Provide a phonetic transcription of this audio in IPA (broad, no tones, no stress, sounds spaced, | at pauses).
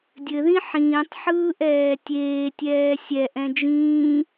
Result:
dʲ ɘ ð ĩ ħ ĩː tˤ ħ ɯː ʔ ɛː tʲ eː tʲ ɛː sʲ ɛ ʔ ɛ̃ d͡ʒ ĩː